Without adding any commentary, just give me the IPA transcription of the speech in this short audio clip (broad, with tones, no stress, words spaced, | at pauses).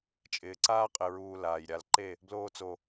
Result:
t͡ʃʼɪː˨ǀaː˦qʼɪ˨ɹuː˨ laː˨jɾʲa˧l ǃe˦˨ | bloː˧t͡so˨